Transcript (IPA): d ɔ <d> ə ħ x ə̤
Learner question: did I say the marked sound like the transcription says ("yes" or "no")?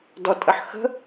no